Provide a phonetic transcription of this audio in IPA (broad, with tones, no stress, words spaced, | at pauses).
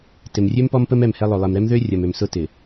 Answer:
tɪ˨mrʲø˦m pɔ˦mpə˦m ɛ˦˨mhɛ˦lˠo˨ lˠɪ˨mɾɛ˦mðø˦ rʲɐ˨mø˨m sʊ˦tɪ˨